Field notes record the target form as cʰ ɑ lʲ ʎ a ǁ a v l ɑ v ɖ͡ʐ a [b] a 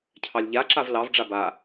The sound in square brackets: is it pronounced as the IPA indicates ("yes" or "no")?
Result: yes